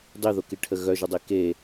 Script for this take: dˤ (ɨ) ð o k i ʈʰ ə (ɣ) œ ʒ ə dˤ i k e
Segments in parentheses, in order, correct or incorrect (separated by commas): incorrect, correct